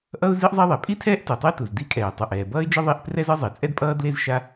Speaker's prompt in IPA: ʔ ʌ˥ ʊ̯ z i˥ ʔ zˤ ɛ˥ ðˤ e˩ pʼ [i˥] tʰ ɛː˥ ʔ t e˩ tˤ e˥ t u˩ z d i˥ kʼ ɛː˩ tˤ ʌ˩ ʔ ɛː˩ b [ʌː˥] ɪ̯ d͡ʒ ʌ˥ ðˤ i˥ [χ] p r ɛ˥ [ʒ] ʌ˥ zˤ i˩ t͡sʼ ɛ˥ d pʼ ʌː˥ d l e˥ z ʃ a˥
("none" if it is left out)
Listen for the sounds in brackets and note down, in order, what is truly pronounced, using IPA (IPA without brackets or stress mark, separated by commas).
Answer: i˥, ʌː˥, ʔ, z